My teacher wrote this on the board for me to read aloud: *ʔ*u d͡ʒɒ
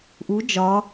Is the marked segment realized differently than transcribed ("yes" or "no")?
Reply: no